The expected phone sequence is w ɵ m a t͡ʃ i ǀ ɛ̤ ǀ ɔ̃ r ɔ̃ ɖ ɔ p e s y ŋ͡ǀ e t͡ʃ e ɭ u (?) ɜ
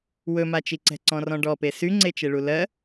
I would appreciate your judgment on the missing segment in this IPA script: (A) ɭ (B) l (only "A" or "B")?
B